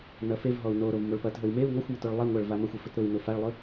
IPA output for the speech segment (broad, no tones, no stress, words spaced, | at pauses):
nɐfevɦɔu̯ noɾov moɭpɐtɦɵi̯ meu̯ ŋɔxʷmet oɭlˠeŋʷaɭ vamɐxʷe fɵtɾʊi̯nʊ faɭlˠɵ